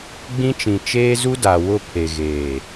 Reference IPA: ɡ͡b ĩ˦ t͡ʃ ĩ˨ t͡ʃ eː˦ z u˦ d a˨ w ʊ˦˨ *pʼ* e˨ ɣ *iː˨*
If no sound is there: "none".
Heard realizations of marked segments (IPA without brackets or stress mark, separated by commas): pʰ, eː˨